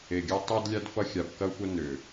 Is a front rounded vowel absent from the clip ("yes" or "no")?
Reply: no